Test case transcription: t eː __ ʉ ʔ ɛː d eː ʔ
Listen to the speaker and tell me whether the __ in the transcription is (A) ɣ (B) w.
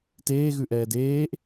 A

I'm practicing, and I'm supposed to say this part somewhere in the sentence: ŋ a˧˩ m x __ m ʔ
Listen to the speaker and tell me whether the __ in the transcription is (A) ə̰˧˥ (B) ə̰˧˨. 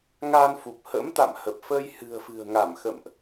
B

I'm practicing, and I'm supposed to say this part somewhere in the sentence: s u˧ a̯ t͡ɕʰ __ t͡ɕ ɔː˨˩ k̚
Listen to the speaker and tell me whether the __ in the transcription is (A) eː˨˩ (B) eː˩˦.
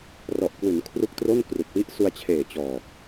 A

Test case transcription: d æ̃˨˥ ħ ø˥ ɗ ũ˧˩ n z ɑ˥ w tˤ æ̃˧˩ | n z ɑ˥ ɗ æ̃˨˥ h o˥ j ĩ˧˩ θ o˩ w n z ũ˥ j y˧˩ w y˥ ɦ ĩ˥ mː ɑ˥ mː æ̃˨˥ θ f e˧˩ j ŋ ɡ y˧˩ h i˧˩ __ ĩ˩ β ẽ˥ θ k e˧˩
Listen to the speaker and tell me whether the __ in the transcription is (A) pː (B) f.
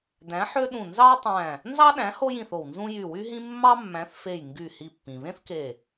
A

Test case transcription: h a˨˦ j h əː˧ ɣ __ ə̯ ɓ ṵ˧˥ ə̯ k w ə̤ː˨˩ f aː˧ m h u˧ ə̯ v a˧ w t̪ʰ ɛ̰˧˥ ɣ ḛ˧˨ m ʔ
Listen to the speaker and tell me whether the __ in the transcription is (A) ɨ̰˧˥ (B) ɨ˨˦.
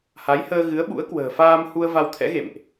B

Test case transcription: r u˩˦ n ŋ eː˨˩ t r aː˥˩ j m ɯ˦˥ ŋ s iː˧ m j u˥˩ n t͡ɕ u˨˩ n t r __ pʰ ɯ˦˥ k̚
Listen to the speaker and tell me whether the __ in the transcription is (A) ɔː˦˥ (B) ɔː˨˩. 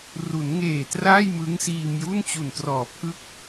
B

